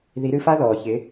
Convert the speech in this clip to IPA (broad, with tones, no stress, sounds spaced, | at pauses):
ð i˨˦ ɾ ɨ˧ f a˦ ð ɔː˨ ç ɪ˨˦